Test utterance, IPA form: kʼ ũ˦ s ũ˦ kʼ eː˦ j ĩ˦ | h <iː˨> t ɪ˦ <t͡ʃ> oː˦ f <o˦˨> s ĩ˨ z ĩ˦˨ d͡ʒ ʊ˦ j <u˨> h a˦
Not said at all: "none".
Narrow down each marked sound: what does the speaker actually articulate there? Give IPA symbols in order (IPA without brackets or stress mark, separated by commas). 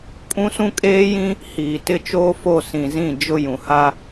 iː˨, t͡ʃ, o˦˨, ũ˨